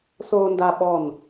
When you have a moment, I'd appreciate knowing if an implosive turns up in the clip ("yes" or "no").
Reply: yes